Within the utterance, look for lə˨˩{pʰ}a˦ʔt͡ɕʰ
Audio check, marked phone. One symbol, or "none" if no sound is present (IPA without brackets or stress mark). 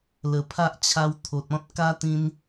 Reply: pʰ